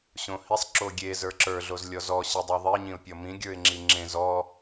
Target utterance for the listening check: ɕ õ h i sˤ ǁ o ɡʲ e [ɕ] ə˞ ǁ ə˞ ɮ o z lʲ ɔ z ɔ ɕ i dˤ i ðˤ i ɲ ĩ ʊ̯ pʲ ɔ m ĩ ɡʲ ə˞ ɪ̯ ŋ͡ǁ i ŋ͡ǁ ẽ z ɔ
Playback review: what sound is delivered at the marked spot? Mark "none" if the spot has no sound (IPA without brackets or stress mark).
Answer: z